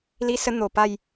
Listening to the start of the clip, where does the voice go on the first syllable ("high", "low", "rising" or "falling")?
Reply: high